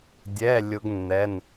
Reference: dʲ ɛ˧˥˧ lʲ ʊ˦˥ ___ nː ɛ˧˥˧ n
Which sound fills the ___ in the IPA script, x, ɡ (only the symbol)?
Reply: ɡ